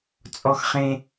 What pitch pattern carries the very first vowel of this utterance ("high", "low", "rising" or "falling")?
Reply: low